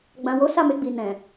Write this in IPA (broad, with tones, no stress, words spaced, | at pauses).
ɡ͡bã˨wo˨˦ sa˦˨me˧ ɡ͡bi˨ nɛ̃˨